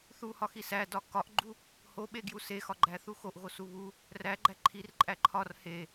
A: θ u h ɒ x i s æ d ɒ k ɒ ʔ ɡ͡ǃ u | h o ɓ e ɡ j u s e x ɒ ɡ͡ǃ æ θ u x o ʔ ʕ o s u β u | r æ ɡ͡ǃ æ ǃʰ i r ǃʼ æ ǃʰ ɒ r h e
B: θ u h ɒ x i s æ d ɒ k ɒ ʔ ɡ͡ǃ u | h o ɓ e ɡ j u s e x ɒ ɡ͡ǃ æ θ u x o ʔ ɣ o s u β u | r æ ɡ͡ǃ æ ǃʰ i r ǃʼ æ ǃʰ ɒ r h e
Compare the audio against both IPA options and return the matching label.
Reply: B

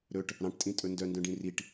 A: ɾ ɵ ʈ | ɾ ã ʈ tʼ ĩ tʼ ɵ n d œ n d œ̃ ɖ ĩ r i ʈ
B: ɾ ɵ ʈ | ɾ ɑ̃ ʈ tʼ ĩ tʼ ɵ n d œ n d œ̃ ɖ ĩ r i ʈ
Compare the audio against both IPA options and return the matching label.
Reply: B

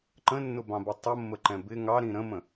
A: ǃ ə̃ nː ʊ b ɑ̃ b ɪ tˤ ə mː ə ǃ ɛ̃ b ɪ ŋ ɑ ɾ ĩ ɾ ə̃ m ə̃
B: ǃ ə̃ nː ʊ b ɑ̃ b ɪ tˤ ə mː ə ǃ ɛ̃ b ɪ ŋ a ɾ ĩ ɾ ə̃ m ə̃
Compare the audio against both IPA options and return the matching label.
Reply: A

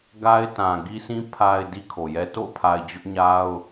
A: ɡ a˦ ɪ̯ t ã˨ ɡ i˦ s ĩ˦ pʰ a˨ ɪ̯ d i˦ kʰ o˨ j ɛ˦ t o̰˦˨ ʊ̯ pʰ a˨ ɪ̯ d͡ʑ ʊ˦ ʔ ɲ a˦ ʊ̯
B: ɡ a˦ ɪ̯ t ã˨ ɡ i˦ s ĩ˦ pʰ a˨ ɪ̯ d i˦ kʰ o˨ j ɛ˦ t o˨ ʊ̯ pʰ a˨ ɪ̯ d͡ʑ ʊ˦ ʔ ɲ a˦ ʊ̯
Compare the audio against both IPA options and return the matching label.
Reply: A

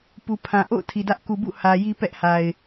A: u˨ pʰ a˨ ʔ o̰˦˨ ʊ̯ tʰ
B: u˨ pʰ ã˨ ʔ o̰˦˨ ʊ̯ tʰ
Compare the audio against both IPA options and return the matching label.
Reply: B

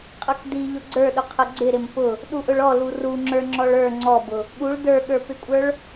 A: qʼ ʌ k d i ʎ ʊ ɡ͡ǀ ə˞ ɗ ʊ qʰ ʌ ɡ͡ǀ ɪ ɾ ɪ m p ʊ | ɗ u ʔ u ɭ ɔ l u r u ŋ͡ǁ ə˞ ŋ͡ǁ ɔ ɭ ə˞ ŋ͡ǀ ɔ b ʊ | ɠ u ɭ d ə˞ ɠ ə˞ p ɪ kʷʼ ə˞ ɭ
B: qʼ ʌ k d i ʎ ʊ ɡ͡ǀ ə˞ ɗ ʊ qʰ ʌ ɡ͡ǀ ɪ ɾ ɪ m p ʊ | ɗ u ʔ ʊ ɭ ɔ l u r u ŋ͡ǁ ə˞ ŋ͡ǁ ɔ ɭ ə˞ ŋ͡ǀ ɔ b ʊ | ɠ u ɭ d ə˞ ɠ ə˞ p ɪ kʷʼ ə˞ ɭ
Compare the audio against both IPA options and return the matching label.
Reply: B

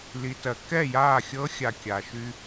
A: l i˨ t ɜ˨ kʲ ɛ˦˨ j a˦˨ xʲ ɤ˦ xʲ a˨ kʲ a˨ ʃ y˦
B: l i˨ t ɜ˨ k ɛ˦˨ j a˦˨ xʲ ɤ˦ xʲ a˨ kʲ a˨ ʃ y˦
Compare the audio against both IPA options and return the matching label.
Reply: B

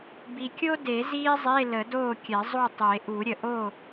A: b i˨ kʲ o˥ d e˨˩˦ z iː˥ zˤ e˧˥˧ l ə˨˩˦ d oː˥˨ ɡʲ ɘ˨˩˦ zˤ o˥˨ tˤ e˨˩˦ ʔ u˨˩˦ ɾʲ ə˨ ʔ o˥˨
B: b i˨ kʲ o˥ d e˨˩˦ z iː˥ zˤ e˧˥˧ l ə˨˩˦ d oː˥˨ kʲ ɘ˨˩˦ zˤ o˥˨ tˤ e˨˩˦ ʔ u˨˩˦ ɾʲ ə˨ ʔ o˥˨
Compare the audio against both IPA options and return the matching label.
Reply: B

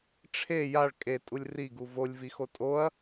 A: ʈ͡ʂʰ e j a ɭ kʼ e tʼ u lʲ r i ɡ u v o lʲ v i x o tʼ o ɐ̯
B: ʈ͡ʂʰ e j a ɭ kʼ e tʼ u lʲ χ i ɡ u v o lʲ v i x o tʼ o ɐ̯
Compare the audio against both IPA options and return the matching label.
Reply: A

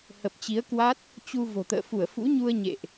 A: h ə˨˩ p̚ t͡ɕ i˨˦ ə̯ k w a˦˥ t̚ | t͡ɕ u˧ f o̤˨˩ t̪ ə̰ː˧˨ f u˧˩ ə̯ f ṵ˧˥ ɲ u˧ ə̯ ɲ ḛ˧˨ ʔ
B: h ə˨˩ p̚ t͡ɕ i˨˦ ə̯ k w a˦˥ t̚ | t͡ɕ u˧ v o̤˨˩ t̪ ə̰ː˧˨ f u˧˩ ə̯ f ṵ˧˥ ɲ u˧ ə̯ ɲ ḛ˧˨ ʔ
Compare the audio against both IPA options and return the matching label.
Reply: B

